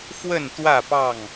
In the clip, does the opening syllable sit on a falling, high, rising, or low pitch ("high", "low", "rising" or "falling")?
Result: falling